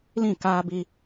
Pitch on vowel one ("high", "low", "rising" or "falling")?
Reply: falling